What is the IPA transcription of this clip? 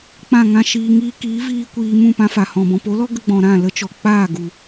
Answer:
k͡p ã˦˨ ŋ ã˦ ʃ iː˧ ŋ iː˧ k iː˨˦ v iː˧ kʷ iː˧ m ũ˦˨ p ã˧ f a˨ h ɔ̃˨ b ɔ̃˨ p o˨˦ l ɔ˦ ɡ ə˧ ɡ͡b ɔ̃˨ ɾ ã˦˨ l ə˦ t͡ʃ ɔ˨ k͡p aː˦˨ ɡ u˨

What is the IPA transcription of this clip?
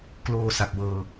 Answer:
k l oː˧ s a˨˩ k̚ w ɤː˧

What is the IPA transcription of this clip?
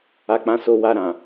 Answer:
a˧ k͡p ã˧ s o˧ w a˧ ɾ ã˨

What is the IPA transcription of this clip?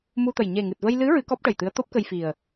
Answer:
m u˧ t̪ ə˨˩ j ɲ e˨˩ ŋ ɨ˨˩ t̚ v ə˧ j l ɨ˧˥ ɹ ɨ˧˥ k ɔ˦˥ p̚ ʈ ə˨˩ j t̪ ɨ˧˥ ə̯ t̪ o˦˥ p̚ k ə˧ j f i˨˩ ə̯

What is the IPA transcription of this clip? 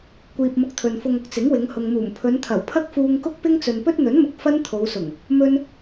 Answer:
kʷ iː˧ p̚ m ʊ˧ k̚ t̪ʰ ɵ˨ n f ʊ˧ ŋ ʊ˥ k̚ t͡s ɪ˨˥ ŋ w ɪ˨˧ ŋ h ʊ˨ ŋ m uː˨˩ m pʰ ɵ˨˧ n t̪ʰ ɐ˨˩ w pʰ ɐ˥ k̚ f uː˧ ŋ k ʊ˥ k̚ p ɪ˥ ŋ t͡s ɵ˨ n p ɵ˥ t̚ n̪ ɵ˨˥ n m ʊ˨ k̚ f ɐ˥ n t̪ʰ o˨˧ w s ʊ˨˩ ŋ | m ɵ˥ n

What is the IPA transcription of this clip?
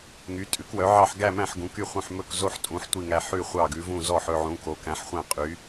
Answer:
ŋ y˨˦ tʼ ʉ˨˦ k w œ˨˦ ʕ ɑ˦˨ ħ ɡ æ˦˨ m æ̃˦˨ ħ ɡ ũ˨˦ k y˦˨ χʷ œ̃˦˨ ħ m ɵ˦˨ k z o˦˨ ħ tʼ ũ˨˦ ħ tʷ i˦˨ ŋ æ˦˨ ħ ʉ˦˨ χʷ ɑ˦˨ ɡ ʉ˨˦ v ũ˦˨ z ɔ˦˨ ħ ɵ˦˨ ʕ ũ˨˦ k o˨˦ k æ̃˨˦ ħ χʷ æ̃˦˨ qʼ y˨˦

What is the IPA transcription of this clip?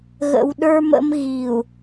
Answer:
ɣ ə̰˨ w ɗ ə˞˦ m ə̰˦ m ɣ i˨ u̯

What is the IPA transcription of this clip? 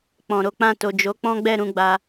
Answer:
k͡p ɔ̃˨ ɾ o˨˦ k͡p ã˦˨ t o˨ d͡ʒ o˨˦ k͡p ɔ̃˦ ɡ͡b ɛ˦˨ ɾ ũ˧ ɡ͡b a˧

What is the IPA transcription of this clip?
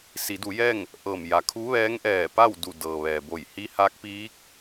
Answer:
s i˩˧ d u˩˧ j ɛː˥˨ ŋ | ʔ ɤː˧˩ m j a˩˧ kʰ u˧˥ ʋ ɛː˧˥ ŋ ʔ ɛː˧˩ p a˥˨ w d u˧˩ d ɤː˩ ʋ ɛː˩ b o˧˩ j h i˧˥ h a˧˥ k̚ p iː˧˥ k̚

